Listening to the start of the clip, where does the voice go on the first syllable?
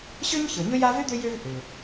high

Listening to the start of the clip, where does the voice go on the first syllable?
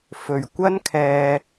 low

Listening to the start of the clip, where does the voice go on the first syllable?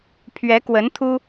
rising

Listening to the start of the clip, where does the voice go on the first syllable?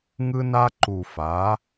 high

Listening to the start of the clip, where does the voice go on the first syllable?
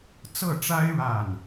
falling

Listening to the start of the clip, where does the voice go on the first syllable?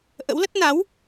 rising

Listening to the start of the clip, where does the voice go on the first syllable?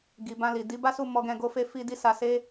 low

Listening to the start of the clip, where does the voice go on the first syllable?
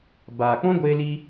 low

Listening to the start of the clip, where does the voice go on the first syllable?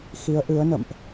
rising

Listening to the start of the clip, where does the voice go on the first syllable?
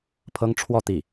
high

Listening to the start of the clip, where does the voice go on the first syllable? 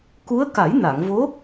rising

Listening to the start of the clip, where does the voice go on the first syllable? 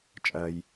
low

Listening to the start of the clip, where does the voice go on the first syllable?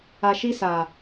low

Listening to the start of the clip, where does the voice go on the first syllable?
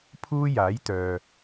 high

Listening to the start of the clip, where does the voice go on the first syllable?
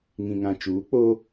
low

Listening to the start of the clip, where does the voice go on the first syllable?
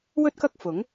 high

